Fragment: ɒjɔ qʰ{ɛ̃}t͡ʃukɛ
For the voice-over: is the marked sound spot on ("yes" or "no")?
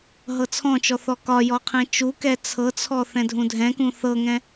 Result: yes